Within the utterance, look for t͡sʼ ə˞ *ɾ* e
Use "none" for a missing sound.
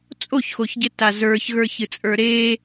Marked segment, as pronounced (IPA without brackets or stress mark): ɾ